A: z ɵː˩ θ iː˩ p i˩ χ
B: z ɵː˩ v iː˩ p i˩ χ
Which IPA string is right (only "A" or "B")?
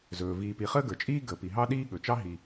B